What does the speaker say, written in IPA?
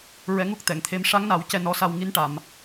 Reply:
ɹ ɛ˧˥ ŋ u˦˥ k̚ t̪ ɛ˨˩˨ ŋ t̪ʰ e˧˥ m ʂ a˧˥ ŋ n a˨˩˦ w c ɛ˧ n ɔ˧˥ s a˧ w ŋ i˧˥ n ʈ a˨˩˨ m

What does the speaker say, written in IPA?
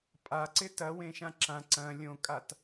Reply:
pʼ a ǀ ɪ t ɐ w ẽ ʃ ã ǁ ã ǀ ɐ̃ lʲ õ kʼ a t

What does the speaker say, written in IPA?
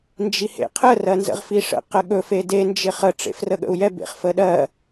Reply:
n d͡ʒ i h ḛ qʰ ə r ɜ n z ə̰ ʁ f i ʂ ə̰ q ə ɠ ɵ f e d e n d͡ʒ ɪ χ ə ʈ͡ʂ ḛ f r ə ɠ ə̰ u̯ j ɛ b ḛ χ f ə ɗ ɜ

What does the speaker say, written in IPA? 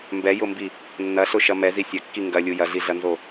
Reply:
m b ɛ j ʊ m b i | nː ɐ ɬ ʊ ʃ ɐ m ɛ z i sʲ ɐ kː i ŋ ɡ ɐ lʲ u j ɐ ɮ i ɮ ɐ n z o

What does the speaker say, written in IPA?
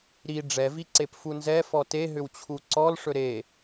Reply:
ɾ i ɖ͡ʐ ɛ v i ǀ e p f u n z ɛ f ɔ t e ɦ ʏ w t͡ɕʰ u ǀ ɔ l ʂ ɵ ɾ e

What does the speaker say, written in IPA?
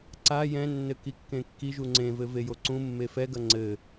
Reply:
ǀ a j ɛ̃ nː ɘ k i kː ẽ kː i ʒ u ŋ͡ǀ ẽ v ɘ v e j o ǀ ũ mː e f ɛ ɡ ɐ ŋ͡ǀ ɘ

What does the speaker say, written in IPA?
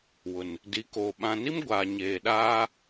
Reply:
w ʊ˨ n | d i˨ k oː˨ ɓ ã˨ n i˦ m ɡʷ aː˨ ɲ eː˨ ɗ aː˦

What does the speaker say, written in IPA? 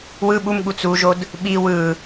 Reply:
w ɯ ɓ u m ɠ u t͡s u ʒ o d | ɓ i w ɯ

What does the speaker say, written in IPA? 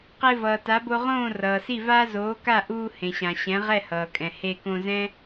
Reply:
q e˧ v ʌː˩ t a˩˥ b o˧ ʁ õː˥˩ r ʌː˩ s i˥˩ v aː˥ z oː˩˥ k a˥˩ ʔ uː˧ h ẽ˩ ɕ ã˩ ɕ ɛ̃˩˥ ʁ ɛ˥˩ h ʌː˩ kʼ ɛ̃˩ h e˧ k õ˧ z ɛ̃˥

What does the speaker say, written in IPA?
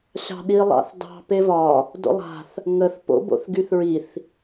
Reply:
ɕ ɑ̤ ɗ i lˠ ɑ̰ θ d ɑ̤ p e v ɒ | d o̰ lˠ a̤ θ | ŋ ə θ p o̰ b o̰ θ ɡ y θ ɹ i θ

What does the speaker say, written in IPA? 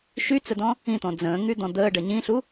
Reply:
ʃ y t͡s ə d ɔ̃ | ĩ t̪ ɔ̃ d͡z ə̃ː ŋ y d̪ ɔ̃ d̪ əː ɖ ə ɲ ĩ ɬ u

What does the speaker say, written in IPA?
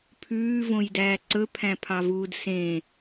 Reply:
pʰ ʉː v õ j d æː ǀ ɵ pʰ æ̃ pʰ ɑ v uː d s ẽ

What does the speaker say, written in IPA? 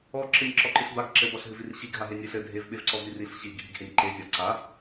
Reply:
ɔ ǁ ɨ nʲ ǁ ɔ ǃ ɨ ɬ b a ɡ ǁ ɘ b ɔ ɬ ɦ ɨ v i r ɕ i ɡ ɦ a ɦ e nʲ ɨ ɬ ɘ dʱ e v ɓ e v ǀ ɔ v i r i ɬ ɕ i ɡʱ i ɡ h e nʲ ǃ e zʲ ɔ ǀ a

